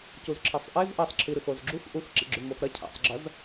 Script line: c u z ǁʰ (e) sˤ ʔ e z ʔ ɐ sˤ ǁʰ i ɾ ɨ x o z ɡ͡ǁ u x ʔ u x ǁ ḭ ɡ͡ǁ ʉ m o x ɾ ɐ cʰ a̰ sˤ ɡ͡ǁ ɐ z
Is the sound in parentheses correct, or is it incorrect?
correct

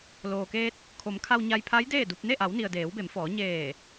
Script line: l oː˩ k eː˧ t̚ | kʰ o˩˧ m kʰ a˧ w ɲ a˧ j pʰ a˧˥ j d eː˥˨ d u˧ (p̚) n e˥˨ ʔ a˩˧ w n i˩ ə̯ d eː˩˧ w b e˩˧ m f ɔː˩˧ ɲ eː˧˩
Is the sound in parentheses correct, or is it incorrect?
correct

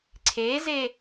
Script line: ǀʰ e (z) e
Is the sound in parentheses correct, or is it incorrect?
correct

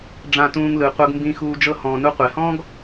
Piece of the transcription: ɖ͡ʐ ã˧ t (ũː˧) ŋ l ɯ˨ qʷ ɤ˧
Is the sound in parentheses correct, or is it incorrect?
correct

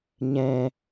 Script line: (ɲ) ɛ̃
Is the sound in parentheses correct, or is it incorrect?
correct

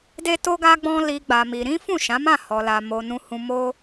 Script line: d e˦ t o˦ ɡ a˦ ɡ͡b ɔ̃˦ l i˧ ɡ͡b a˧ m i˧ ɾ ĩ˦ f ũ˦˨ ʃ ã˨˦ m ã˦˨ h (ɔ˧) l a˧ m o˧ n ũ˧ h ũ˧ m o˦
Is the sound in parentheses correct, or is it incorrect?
correct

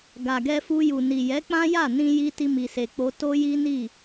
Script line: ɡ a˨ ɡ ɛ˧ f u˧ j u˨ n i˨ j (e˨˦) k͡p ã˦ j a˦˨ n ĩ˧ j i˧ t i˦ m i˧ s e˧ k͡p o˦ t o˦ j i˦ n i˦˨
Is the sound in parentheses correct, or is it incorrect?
incorrect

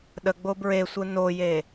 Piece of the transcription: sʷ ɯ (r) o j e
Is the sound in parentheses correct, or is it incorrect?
incorrect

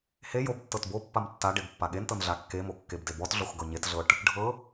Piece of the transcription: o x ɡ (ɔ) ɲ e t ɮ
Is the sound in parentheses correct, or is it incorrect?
incorrect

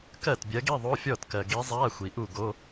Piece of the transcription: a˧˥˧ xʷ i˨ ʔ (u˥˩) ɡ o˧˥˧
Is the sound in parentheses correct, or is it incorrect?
correct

